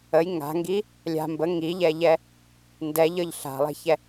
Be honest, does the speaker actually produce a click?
no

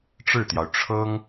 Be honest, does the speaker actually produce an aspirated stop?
yes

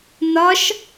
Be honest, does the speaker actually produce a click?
no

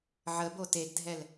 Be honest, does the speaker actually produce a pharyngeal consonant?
yes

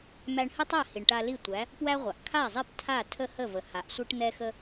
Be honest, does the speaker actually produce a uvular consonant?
yes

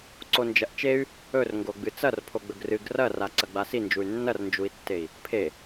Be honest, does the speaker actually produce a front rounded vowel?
yes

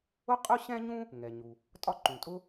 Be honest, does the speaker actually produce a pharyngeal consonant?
no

